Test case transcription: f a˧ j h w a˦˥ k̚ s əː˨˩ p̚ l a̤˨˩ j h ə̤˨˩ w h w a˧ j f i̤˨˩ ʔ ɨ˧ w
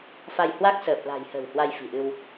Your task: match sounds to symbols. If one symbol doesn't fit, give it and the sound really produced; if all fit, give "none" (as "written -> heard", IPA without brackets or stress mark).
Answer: none